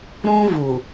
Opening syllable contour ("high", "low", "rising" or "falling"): high